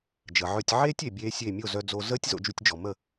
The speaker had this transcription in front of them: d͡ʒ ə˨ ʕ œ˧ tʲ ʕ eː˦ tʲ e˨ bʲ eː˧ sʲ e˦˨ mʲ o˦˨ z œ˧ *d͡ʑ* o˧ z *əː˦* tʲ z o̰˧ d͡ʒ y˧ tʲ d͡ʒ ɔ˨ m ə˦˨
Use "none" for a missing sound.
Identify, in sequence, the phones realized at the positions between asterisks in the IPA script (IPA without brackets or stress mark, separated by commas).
d͡z, əː˦